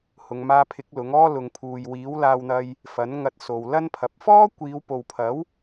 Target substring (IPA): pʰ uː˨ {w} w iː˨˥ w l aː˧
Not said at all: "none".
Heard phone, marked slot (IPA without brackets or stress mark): j